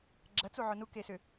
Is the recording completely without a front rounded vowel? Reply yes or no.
no